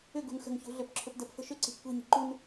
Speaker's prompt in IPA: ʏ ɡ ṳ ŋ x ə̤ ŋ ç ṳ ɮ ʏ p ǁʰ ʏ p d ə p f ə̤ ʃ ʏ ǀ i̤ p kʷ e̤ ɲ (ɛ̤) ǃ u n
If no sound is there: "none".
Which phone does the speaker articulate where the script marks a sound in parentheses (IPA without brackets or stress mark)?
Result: e̤